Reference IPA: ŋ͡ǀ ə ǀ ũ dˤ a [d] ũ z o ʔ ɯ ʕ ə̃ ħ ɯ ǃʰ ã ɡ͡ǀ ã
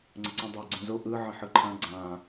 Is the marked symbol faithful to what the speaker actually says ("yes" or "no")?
no